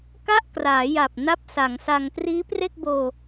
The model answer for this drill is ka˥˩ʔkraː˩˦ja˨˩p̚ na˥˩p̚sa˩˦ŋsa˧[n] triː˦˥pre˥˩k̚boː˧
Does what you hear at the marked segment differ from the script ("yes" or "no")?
yes